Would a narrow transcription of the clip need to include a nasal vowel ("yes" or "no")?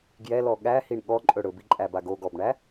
no